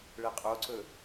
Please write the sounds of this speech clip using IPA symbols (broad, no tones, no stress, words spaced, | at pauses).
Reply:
ɭeqʼoǀɵ